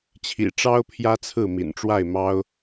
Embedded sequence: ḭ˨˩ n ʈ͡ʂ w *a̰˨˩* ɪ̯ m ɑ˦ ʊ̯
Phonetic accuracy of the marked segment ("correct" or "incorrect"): incorrect